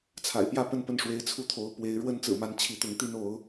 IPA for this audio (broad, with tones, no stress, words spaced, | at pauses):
t͡sʰa̰˨˩ɪ̯pjä˥˨pə˥˨n pə˥˨nʂwe˨˦ɪ̯t͡sʰu˦t̪ʰo˨˦ʊ̯ pwe˨˦ɪ̯ ɻwə˦nt͡sɹ̩˨˩ma˨˦n t͡ɕʰi˨˦t̪ʊ˨˦ŋt̪i˦n o˨˦ʊ̯